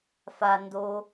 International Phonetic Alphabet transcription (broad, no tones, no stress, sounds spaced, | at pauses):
f a n d o